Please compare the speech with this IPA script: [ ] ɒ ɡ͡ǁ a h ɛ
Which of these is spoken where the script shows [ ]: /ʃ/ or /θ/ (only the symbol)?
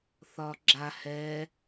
θ